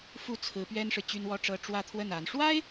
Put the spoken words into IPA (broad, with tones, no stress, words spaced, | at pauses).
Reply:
fu˥˩t͡sʰɹ̩˧˥pɥɛ˥nʂɻ̩˨ t͡ɕy˥nwɔ˥ʈ͡ʂɤ˥ ʈ͡ʂwä˥˧t̪ʰwə˥˩na˧˥n ʂwa˥ɪ̯